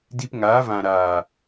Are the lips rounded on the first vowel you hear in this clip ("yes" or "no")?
no